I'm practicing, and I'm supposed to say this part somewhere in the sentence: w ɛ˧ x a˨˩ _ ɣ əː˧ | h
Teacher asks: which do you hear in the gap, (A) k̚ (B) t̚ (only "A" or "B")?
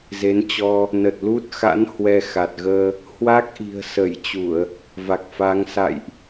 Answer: B